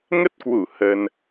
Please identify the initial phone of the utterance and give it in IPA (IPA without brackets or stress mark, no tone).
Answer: ŋ